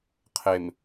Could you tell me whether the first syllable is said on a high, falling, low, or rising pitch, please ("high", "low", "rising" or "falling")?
low